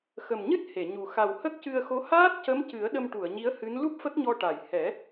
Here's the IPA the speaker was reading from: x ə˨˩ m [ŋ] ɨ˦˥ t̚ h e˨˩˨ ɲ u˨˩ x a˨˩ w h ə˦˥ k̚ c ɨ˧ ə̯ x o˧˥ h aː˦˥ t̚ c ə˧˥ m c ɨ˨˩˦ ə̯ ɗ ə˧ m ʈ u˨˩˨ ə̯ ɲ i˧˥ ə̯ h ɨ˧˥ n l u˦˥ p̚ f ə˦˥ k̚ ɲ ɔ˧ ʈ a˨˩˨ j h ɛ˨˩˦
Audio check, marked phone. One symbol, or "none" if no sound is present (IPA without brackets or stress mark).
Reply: ɲ